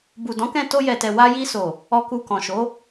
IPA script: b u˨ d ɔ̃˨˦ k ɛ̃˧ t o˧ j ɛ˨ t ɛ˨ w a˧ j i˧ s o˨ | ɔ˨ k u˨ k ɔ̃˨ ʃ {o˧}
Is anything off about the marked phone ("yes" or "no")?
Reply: yes